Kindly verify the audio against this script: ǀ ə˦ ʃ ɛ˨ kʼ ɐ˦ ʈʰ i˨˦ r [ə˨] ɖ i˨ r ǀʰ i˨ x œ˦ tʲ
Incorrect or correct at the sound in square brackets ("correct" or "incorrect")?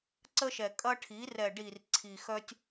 incorrect